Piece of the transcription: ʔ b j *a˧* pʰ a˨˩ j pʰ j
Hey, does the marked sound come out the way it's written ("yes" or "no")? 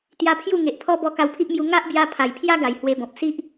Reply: yes